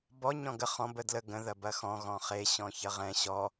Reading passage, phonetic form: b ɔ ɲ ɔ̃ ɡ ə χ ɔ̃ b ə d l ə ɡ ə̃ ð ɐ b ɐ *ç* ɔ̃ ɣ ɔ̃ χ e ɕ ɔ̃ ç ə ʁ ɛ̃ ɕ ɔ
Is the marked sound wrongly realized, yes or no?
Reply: yes